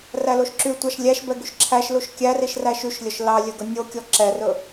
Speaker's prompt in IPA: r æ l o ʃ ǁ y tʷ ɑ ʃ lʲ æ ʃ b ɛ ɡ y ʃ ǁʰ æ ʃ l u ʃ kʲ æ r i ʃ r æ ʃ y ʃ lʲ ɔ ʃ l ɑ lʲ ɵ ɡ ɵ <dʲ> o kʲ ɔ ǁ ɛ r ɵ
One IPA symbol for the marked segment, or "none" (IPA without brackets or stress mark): nʲ